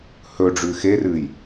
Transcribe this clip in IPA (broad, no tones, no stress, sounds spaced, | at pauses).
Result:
h ɵ ɖ͡ʐ ʉ x e r ɨ j